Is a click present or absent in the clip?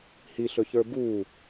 absent